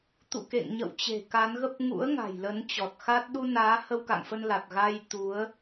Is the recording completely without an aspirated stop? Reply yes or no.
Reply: yes